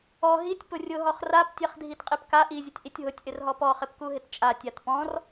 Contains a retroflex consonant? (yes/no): no